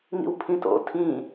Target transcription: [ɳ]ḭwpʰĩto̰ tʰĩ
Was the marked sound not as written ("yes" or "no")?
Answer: yes